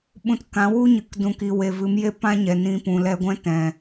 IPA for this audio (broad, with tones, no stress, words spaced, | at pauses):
ɓũ˧tkã˨˦ wu˦ɲɨ˨k dũ˨ki˨ we˨vɨ˨˦m je˦ pã˦ɲɛ˨ nĩ˧pũ˨ lɛ˧ɡʷɛ̃˦ tɛ̃˨